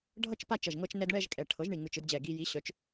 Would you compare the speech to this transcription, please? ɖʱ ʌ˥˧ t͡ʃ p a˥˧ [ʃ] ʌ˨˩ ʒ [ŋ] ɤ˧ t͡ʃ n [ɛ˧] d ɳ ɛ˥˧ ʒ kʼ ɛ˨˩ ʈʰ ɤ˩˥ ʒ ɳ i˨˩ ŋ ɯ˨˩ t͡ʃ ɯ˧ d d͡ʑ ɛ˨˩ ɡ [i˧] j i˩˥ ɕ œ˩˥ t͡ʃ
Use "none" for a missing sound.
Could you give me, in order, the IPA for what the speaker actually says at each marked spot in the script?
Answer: t͡ʃ, ŋ, ɛ˧, i˧

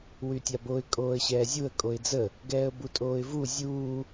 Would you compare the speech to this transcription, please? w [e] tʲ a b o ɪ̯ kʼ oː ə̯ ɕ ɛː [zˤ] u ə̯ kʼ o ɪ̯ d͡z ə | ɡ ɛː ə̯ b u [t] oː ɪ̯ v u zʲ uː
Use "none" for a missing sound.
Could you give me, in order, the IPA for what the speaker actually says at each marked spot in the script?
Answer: y, zʲ, tʼ

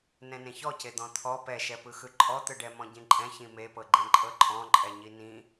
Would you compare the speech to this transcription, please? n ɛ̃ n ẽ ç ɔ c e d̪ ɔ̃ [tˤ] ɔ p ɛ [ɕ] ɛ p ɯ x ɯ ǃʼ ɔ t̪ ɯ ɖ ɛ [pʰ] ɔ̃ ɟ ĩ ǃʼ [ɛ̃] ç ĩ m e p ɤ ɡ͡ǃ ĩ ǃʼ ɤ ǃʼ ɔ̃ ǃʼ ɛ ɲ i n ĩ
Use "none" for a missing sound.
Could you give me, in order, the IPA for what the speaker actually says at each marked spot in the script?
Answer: t̪ʰ, ʃ, m, ɛ̃

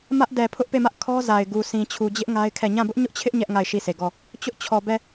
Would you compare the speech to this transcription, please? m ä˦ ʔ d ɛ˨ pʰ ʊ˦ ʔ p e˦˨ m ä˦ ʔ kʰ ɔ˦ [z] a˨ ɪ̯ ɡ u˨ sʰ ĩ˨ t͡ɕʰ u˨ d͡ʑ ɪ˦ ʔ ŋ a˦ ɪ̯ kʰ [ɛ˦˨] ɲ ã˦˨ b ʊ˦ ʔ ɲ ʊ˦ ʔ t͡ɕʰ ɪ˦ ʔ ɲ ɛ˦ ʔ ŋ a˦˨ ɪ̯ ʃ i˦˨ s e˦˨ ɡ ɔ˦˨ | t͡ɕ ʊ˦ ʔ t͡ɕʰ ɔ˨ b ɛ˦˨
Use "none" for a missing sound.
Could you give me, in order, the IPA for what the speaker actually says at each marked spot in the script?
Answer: z, ɛ˦˨

